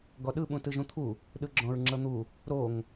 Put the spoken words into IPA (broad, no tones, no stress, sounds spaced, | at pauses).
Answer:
ɡ ɔ ɗ ɯ ɓ ũ t ɯ ʒ ũ t̪ʰ u | ɗ ɯ ɡ͡ǁ ɔ̃ ɹ ŋ͡ǁ ɤ n̪ u | ɾ o ŋ